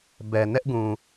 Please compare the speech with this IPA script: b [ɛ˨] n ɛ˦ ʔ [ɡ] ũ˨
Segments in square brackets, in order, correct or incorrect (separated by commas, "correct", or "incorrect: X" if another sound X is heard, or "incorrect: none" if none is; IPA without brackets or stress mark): correct, correct